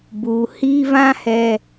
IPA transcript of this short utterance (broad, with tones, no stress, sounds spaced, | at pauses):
b u˨ h iː˦ v ã˦ h ɛ˨